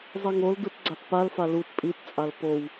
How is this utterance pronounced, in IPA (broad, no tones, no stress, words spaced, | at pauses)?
zˤiŋoldut ɡ͡ǀatpalfa lut pʼitt͡sʼal pow